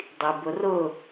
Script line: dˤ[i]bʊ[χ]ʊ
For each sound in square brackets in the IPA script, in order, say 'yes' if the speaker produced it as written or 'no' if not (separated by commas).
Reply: yes, no